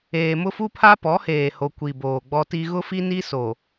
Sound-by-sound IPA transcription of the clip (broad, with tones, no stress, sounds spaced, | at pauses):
eː˨ m ʊ˦ f u˦ pʰ a˦ p ɔ˨˦ h eː˨ h o˨ kʷ i˨ b oː˨ ɡ͡b ɔ˦ t i˦ ɣ ʊ˦ f i˦ n i˦ s o˨